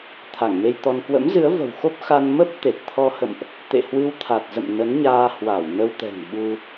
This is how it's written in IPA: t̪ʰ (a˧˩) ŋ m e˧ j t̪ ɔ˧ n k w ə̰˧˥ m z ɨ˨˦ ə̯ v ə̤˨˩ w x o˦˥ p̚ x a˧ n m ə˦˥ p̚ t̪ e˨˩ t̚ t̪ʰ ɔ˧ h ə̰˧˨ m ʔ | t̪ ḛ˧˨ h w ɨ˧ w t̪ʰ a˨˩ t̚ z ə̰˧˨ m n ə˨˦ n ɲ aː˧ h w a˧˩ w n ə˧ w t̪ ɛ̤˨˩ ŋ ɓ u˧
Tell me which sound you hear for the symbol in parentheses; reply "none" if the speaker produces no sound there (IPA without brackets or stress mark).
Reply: a˧˩